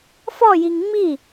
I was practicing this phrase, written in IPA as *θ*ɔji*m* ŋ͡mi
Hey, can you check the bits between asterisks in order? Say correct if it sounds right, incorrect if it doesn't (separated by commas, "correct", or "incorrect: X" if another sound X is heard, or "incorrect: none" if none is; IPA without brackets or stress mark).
incorrect: f, incorrect: ŋ